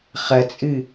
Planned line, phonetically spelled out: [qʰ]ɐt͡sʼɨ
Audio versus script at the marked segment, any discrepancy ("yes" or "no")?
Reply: yes